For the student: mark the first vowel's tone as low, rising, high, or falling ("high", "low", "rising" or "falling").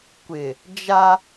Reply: low